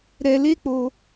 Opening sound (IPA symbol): ɾ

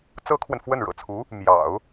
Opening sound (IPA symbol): t͡s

